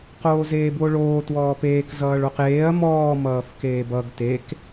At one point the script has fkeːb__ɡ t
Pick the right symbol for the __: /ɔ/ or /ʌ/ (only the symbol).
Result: ʌ